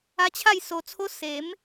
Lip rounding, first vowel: unrounded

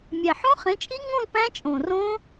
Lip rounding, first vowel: unrounded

